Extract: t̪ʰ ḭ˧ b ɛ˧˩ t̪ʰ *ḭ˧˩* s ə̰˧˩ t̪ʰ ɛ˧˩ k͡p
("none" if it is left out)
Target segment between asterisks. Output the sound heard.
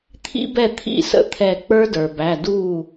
ḭ˧˩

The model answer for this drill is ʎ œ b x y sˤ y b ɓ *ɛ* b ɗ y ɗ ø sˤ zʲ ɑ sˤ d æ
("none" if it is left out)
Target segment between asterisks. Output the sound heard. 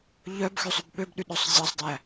ø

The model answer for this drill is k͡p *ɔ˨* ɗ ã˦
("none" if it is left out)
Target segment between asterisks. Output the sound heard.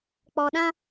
ɔ˨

